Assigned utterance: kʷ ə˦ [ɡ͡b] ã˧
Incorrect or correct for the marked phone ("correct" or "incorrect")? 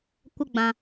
correct